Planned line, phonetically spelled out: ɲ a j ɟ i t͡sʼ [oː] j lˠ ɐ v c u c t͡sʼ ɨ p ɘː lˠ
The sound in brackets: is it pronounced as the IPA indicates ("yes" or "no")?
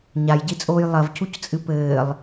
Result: yes